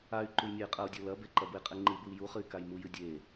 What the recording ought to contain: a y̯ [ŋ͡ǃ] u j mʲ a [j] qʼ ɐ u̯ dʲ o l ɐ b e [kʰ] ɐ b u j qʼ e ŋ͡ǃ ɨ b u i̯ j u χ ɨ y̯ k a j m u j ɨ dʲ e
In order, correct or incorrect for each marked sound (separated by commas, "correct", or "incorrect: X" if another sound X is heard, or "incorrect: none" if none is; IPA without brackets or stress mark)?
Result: incorrect: ǃ, correct, incorrect: ǃ